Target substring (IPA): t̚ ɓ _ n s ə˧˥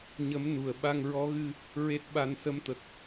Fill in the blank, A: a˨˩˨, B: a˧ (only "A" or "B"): B